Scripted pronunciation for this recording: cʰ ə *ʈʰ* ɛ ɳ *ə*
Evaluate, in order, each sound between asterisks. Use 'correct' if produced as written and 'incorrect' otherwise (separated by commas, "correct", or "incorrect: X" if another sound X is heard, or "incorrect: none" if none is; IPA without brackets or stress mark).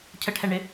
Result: correct, incorrect: ɪ